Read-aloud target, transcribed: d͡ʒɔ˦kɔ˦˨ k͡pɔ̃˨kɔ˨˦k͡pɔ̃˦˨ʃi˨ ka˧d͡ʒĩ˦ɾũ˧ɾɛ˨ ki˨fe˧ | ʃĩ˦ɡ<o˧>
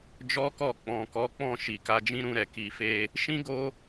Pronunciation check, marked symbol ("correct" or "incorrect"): correct